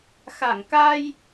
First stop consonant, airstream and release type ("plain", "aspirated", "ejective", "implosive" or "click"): plain